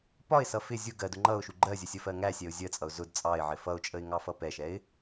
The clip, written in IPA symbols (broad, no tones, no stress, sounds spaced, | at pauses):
p ɒ ɪ̯ s ʌ f ɪ zʲ ʊ ɡ ɜ d ʊ ŋ͡ǃ ʌ ʊ̯ ʃ u ɡ͡ǃ ɜ zʲ ə sʲ ə f ɜ ŋ æ sʲ ɛ ʊ̯ zʲ ɜ t͡sʼ ʌ ʊ̯ z ʊ d t͡sʼ ɑ ɪ̯ ʕ ɪ f ʌ ʊ̯ t͡ʃʼ ə ɪ̯ ŋ ɑ f ʌ p ɛ ʃ ɛ ɪ̯